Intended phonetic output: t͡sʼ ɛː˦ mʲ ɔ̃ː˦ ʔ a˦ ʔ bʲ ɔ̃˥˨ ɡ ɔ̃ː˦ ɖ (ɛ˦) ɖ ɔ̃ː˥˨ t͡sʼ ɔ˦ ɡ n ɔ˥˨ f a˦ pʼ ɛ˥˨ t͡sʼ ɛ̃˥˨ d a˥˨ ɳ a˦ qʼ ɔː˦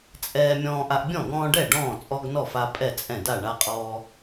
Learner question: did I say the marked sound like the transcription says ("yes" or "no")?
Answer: no